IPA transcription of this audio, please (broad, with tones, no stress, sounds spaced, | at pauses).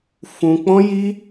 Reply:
f ũ˧ k͡p ɔ̃˦ j i˦